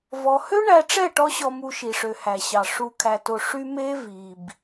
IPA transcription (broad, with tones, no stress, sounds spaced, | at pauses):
v ɔ˧ h ø˦ ɳ æ˧ ʈ͡ʂ ɛ˦˨ ʈ ɔ˦ ɕ ɔ˧ m u˧ ʃ i˨ ʂ ø˨ h æ˨ ɕ ɑ˨ ʂ u˨ kʰ æ˨ t o˨ ʂ y˦ m e˦ v i˨ b